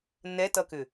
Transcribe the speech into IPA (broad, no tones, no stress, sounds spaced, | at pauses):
n ɛ t ʌ k ʏ